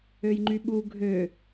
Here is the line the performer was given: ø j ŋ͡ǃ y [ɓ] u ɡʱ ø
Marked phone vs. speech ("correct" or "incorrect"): correct